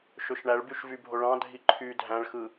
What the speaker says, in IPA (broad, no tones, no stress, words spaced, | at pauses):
ʃøʃɳæɭbyʃ vybʱoɭɑ̃ dʱiǃʰy dʱæ̃ɭxɯ